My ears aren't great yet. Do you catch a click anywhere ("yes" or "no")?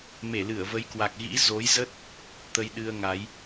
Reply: no